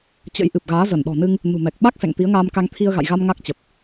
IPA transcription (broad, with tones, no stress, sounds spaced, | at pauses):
t͡ɕ ə̰˧˥ j ʔ ɨ˨˩ p̚ ɣ aː˨˦ z ə˧˩ n ɗ ɔ̤˨˩ n ɨ˧ ŋ | n ṳ˨˩ m ɛ˨˩ k̚ ɓ a˦˥ k̚ s ɛ̰˧˨ ŋ t̪ i˨˦ ə̯ ŋ aː˧ m k a˧ ŋ t̪ʰ i˧ ə̯ ɣ a̰˧˨ j ɣ a˧ m ŋ a˦˥ k̚ t͡ɕ ə˨˩ p̚